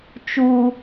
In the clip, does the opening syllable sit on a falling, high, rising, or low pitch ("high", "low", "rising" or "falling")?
high